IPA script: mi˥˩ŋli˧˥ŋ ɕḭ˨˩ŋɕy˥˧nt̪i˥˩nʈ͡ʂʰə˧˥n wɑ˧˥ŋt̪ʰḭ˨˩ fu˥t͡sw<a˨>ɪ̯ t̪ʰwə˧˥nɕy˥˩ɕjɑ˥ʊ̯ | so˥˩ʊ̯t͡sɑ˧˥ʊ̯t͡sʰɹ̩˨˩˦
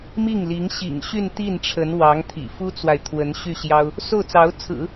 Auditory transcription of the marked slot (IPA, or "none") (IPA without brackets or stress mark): a˨